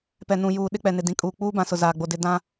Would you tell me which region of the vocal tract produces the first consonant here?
lips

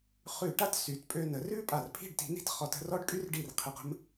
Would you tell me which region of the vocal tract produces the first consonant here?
uvula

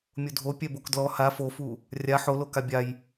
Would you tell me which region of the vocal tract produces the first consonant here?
lips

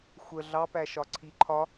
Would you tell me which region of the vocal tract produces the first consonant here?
velum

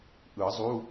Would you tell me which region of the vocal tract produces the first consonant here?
throat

